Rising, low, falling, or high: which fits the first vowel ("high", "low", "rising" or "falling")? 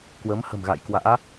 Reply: rising